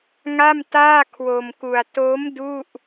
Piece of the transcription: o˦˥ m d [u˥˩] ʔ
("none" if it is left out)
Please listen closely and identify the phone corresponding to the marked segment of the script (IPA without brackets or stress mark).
u˥˩